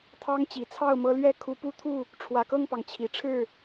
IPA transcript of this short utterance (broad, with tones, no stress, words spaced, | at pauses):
t̪ʰɑ˦ŋt͡ɕi˨˩t͡sʰɑ˥˨ʊ̯mɤ˦ lɥɛ˥˨ kʰu˨˦pu˦t̪ʰu˥˨ | ʈ͡ʂʰwä˨˩kɤ˥˨ŋpɑ˩ŋ t͡ɕʰi˨˩ʈ͡ʂʰɻ̩˥˨